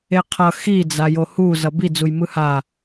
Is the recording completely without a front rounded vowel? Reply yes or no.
yes